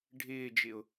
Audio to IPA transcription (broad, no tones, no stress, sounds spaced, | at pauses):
ɖʱ ɪː d͡ʒ ɪ ʊ̯